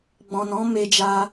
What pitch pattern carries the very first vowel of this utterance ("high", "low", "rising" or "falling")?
low